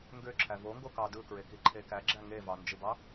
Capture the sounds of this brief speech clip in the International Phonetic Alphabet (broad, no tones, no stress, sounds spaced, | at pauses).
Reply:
ŋ ɡ ø ǁʰ æ v o ŋ ɡ o k ɑ d ɯ k ɹ e k i ǃʰ e k æ ɡ͡ǁ æ ŋ e v ɑ n d͡ʒ ɯ b ɑ